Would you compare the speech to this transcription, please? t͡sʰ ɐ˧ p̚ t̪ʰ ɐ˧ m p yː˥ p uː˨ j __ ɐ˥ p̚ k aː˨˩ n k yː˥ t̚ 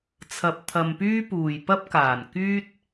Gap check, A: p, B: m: A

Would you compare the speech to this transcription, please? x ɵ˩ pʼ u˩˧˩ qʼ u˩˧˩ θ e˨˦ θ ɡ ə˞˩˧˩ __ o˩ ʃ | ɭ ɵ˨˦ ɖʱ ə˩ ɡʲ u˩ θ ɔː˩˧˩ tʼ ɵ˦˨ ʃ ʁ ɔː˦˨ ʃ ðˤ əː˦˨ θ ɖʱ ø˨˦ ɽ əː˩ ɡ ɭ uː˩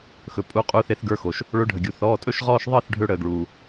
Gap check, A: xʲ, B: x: B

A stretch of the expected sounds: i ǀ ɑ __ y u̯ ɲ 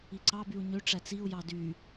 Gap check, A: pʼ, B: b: B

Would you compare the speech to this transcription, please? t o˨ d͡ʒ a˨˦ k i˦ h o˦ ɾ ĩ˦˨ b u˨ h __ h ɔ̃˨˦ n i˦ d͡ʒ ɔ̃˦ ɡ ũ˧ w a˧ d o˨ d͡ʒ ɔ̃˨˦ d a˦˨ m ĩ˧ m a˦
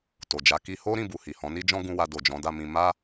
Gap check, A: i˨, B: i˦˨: A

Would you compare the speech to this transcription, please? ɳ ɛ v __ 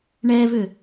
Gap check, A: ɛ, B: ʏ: B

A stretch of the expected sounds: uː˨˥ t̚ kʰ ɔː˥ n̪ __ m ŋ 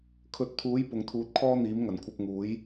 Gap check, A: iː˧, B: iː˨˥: B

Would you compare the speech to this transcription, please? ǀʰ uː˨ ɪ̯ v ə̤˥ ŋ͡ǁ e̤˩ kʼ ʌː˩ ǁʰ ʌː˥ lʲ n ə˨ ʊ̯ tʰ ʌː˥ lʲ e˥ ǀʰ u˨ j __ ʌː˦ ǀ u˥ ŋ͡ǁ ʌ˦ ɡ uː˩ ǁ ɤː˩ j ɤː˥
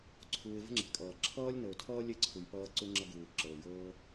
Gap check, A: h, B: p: B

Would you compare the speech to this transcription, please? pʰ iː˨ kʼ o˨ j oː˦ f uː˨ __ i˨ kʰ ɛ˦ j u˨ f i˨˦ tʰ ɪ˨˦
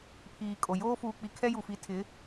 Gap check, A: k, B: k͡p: B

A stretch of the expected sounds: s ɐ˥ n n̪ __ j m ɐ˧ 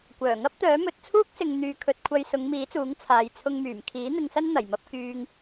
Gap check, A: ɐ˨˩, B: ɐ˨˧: A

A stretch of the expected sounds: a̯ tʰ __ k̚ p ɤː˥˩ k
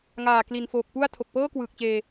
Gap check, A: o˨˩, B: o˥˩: A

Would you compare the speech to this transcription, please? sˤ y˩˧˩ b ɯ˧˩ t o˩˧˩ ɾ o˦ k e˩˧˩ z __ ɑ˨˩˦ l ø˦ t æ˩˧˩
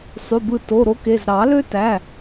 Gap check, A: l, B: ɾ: B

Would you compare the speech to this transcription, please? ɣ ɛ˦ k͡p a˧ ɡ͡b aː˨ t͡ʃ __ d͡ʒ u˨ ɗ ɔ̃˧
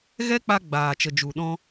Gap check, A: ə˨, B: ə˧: A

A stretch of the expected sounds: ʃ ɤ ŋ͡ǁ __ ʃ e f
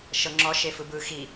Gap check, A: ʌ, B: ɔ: B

